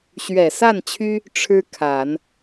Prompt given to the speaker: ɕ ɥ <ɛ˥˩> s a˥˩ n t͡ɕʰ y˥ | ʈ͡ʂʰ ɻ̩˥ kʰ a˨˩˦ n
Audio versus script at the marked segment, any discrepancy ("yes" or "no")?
yes